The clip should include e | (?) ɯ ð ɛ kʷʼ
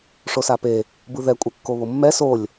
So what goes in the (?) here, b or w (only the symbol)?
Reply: b